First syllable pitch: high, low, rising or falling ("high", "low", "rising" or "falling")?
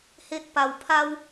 high